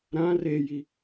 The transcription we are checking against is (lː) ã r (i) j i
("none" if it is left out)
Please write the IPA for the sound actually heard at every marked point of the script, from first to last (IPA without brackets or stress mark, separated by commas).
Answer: ɾ, e